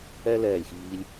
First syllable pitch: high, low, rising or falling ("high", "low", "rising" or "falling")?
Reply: high